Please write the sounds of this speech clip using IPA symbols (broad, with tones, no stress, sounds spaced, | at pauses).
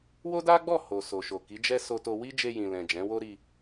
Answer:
w o˦ d a˦ ɡ͡b ɔ˦˨ h o˨ s o˨ ʃ o˨ k i˨˦ d͡ʒ ɛ˦ s o˧ t o˧ w i˦ d͡ʒ e˧ j ĩ˨ l ɛ̃˨ d͡ʒ ɛ̃˨˦ w o˦ ɾ i˧